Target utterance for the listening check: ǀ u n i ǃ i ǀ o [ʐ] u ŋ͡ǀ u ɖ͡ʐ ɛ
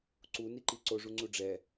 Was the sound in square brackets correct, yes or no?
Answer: yes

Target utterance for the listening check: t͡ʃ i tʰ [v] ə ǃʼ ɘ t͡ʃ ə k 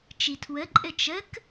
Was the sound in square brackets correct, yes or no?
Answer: no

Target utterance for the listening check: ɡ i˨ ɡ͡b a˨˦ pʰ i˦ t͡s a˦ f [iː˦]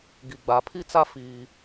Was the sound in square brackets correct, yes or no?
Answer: yes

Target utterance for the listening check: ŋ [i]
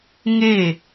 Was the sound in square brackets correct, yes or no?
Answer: no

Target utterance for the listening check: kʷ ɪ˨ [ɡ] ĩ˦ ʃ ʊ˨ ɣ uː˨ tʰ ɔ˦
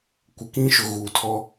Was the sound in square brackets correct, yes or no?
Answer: no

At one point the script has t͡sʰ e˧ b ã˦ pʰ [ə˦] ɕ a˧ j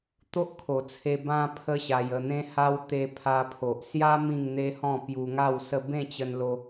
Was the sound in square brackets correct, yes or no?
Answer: yes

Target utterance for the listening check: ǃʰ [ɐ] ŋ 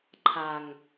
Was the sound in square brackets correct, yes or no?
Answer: no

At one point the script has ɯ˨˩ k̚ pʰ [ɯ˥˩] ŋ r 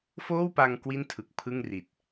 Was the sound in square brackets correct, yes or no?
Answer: yes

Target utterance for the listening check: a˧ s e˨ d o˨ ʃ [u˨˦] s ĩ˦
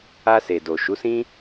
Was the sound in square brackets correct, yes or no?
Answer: yes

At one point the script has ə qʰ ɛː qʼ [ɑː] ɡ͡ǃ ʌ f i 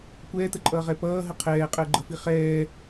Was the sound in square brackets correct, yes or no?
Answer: no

